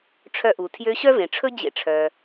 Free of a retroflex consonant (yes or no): no